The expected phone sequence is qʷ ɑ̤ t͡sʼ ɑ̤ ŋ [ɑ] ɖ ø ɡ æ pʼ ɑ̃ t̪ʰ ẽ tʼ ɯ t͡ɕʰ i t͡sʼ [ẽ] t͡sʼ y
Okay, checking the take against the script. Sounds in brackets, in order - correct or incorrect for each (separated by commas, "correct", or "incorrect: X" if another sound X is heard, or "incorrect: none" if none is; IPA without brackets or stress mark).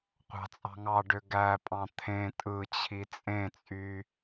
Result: correct, correct